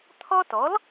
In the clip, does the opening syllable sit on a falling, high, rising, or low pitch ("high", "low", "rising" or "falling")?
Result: high